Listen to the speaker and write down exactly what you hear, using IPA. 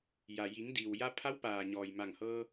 j a˩ j i˩˧ ŋ d iː˩ w j a˧ pʰ a˧˥ w p aː˩ ɲ ɔː˩ j m a˧˩ ŋ h ɤː˧

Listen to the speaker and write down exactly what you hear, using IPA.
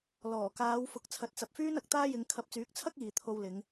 l ɔː˨˩ k aː˨˧ w f ʊ˨˥ k̚ t͡sʰ ɐ˨˥ t̚ t͡s ɐ˨ p̚ f yː˥ n ɐ˨ k̚ t̪ aː˥ j ɪ˨˧ ŋ kʰ ɐ˨˥ p̚ t͡s yː˨˥ k̚ t͡sʰ ɐ˥ k̚ iː˨ t̪ʰ o˧ w l ɪ˨˧ ŋ

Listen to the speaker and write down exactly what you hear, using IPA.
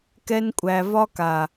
k ɛ˧ n kʷʼ æ˨ v ɒ˧ k a˨

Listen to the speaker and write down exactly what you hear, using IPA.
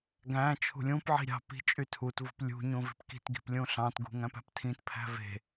ɡ æ̃ t͡ʃʰ ṳ lʲ ũ p ʕ i̤ ɾʲ ɑ̤ p i̤ t͡ʃʼ y tʰ u t v ṳ p lʲ ṳ ɲ ũ v i̤ p k i̤ t ɡ i̤ p lʲ ũ ɬ ɑ̃ t ɡ ṳ ŋ æ̃ p æ̤ p tʰ ĩ t pʰ æ̤ v e̤

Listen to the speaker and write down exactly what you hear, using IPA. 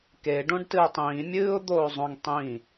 k e ɖ õ ɖ t ɨ ɪ̯ tˤ ĩː mʲ ɨː ʊ̯ d̪ oː zˤ õ ŋ tˤ ĩ

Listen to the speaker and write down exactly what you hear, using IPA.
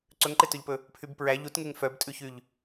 ǀ ɵ ŋ ǃ e t ɵ ʎ p ɵ | pʰ y b p ɹ æ ʎ u t ŋ e ŋ f œ b tʼ ʉ ç y ʎ

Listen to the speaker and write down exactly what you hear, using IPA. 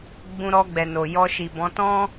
ɡ͡b ũ˧ ɾ ɔ˧ ɡ͡b ɛ˨ n o˨ j ɔ˧ ʃ i˨ b ɔ̃˨˦ t ɔ̃˦

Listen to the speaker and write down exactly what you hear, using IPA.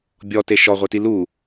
bʲ ɔ t e ʃ ɔ ʁʷ e t i l u

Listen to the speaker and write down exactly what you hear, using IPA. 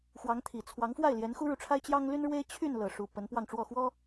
x w ɑ˧˥ ŋ t̪ʰ i˨˩ t͡sʰ w ɑ˧˥ ŋ f w a˥˩ ɪ̯ l j ɛ˧˥ n x u˥ ɻ u˨ ʈ͡ʂʰ a˥ ɪ̯ t͡ɕ j ɑ˥ ŋ l y˥ n ɻ w e˥ ɪ̯ t͡ɕʰ y˥˧ n l ɤ˥˩ ʂ u˥ p ə˧˥ n p w ɑ˥˧ ŋ ʈ͡ʂ w ɔ˥˩ x w ɔ˥

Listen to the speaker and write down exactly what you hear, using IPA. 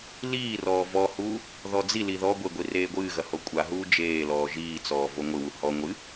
l iː r ɔː v ɔ h uː | ð ɔ d͡z i l i ð ɔ ɡʷ e ɡʷ i r eː ɡʷ ɨː ɣ ɐ h o kʷʼ a ɦ uː d͡ʒ eː l ɔː ʒ iː t͡s ɔː v o ŋʷ ɨ w u h ɔ ŋʷ ɨ

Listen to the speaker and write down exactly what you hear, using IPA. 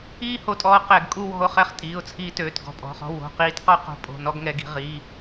iː˥˧ h o˧ tʼ ɔː˧ q ɛ˧˩˧ ɡ kʼ u˥˧ w ɔ̤˧ ʊ̯ χ ɛ˧ χ tʼ iː˩˧˩ ʊ̯ t͡sʰ iː˧ t øː˩˧˩ t ɡ ɔ̤˩˧˩ pʼ ɔ̤˩˧˩ χ ɔ̤˧ w o̤˩˧˩ q iː˧ t q ɔ˥˧ q o̤˧ pʼ o̤˩˧˩ n ɔ˥˧ ɡ ŋ ɛ˧ ɡ i̤˧ ʁ i˩˧˩

